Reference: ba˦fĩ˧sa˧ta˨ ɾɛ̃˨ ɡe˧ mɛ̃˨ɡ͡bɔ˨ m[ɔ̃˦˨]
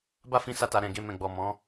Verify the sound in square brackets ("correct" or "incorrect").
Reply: incorrect